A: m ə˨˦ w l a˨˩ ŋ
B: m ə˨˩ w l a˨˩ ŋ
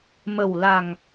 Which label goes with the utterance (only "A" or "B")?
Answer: B